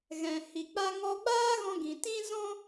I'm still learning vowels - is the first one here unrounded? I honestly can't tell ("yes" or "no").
yes